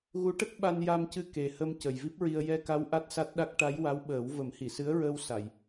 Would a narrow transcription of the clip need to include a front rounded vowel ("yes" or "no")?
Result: no